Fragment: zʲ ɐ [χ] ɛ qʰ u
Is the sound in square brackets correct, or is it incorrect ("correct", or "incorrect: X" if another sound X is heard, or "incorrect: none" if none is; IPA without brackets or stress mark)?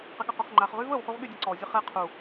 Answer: correct